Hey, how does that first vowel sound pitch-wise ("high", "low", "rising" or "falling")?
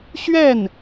falling